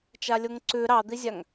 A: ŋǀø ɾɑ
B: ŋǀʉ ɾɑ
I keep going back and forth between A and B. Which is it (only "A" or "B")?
B